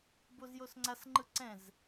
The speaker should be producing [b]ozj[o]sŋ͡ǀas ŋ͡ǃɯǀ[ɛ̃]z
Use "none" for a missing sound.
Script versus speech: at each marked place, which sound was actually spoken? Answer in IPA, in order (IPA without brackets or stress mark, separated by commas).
b, o, ɛ̃